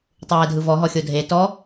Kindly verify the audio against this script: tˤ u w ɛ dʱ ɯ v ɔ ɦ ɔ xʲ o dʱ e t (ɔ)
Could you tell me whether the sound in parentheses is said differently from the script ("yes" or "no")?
no